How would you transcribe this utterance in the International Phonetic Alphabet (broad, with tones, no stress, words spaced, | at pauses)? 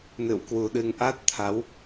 nɨ̰˧˨wkwu˨˩ɗɨ˧ŋ ʔa˦˥t̚t̪ʰa˨˦w